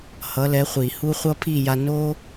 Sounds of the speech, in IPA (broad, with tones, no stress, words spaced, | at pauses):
hʌ˨˦lɛ˨˦χʷi˨hu˦ χʷʌ˦pʰi˦˨ja˧ no˦